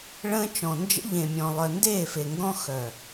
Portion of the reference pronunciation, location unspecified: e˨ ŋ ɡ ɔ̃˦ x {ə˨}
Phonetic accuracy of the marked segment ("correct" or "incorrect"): incorrect